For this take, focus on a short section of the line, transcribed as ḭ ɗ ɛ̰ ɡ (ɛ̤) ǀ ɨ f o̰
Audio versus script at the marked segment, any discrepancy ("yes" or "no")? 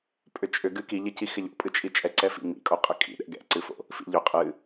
yes